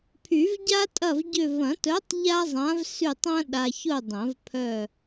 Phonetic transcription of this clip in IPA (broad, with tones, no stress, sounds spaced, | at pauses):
pʰ y˨˩˦ v ɟ a˥ tʼ ɐ˦˨ v ɟ ʏ˦˨ v ɐ̃˨˩˦ t œ˨˥ tˤ ʎ a˥ zˤ ã˨˥ v s y˦˨ tˤ ɐ̃˥ ɗ a˨ ç ʊ˦˨ dˤ ɐ̃˨˩˦ v pʰ œ˦˨